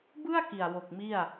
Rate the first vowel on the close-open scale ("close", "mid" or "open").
close